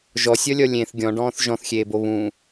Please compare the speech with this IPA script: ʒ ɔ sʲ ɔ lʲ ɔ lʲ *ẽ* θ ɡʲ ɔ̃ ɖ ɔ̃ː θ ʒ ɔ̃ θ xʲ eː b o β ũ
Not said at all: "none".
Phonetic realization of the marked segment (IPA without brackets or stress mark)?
ẽ